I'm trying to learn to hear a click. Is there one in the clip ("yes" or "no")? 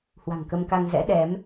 no